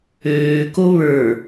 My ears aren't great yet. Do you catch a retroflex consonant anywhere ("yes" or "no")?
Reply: no